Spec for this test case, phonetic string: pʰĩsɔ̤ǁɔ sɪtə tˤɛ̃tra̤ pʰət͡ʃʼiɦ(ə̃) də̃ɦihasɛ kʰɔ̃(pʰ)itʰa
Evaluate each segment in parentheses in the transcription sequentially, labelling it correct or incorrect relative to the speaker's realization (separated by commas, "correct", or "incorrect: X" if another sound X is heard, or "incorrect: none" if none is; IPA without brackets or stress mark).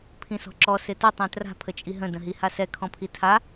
correct, correct